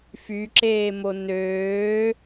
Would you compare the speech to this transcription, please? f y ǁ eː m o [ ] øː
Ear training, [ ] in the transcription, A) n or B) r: A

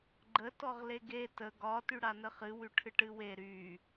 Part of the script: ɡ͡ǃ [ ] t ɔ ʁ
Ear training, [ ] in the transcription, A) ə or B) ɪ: A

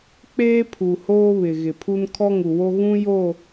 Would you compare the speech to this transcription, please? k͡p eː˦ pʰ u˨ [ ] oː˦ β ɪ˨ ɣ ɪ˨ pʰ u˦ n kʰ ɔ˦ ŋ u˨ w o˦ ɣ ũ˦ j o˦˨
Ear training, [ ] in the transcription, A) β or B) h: B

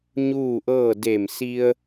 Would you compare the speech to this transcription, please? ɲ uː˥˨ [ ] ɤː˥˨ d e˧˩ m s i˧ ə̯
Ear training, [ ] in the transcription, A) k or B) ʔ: B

